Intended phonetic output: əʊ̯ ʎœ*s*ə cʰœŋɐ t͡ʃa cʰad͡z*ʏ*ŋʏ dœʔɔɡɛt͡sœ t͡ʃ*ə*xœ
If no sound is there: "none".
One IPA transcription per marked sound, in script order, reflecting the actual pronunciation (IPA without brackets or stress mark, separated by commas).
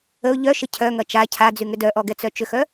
ʃ, y, ʏ